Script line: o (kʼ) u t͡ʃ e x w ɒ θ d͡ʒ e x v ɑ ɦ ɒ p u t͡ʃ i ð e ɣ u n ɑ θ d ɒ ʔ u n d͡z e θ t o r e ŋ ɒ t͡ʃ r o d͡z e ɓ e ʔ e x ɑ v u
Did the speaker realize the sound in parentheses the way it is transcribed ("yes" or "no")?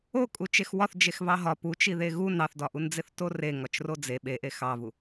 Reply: yes